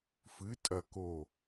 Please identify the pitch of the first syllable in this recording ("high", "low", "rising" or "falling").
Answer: rising